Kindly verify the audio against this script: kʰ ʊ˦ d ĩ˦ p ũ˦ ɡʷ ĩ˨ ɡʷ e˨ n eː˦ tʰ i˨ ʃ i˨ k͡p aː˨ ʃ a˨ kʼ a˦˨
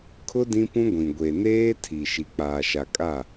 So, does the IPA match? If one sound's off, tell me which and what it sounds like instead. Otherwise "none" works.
none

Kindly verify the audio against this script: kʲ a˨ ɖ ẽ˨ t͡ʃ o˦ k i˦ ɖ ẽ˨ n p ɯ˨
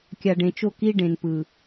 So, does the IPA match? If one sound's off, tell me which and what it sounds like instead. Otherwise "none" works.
none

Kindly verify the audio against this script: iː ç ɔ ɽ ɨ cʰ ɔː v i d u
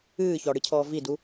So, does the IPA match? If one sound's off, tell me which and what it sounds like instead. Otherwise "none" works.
iː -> ɨː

